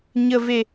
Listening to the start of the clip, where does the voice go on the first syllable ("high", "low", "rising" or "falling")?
low